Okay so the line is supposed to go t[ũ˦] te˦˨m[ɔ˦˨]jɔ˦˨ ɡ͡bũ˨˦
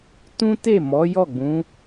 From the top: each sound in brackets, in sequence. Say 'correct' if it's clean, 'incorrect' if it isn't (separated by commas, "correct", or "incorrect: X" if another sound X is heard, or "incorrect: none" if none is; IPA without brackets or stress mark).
correct, incorrect: ɔ˨˦